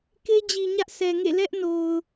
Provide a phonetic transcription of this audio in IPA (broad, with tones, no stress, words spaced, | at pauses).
ke˦d͡ʑi˨ ɲä˦ʔsɛ˨ŋḛ˦˨ lɛ˦ʔno˨ʊ̯